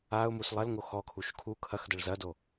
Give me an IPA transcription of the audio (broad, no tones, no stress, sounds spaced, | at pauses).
a ʊ̯ m u s lˠ ɐ l ŋ o x ɔ kʰ u ʃ kʰ u kʰ ɐ x d ɐ ɭ z ɐ d o